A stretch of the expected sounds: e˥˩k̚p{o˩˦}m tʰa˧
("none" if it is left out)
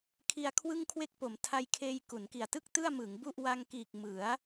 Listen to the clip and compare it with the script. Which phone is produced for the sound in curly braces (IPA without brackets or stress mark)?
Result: o˩˦